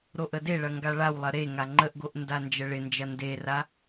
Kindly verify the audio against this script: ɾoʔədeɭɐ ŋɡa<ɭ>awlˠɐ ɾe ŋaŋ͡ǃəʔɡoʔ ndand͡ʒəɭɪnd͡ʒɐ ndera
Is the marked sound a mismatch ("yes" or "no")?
no